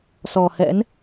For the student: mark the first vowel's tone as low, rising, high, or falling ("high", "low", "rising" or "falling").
low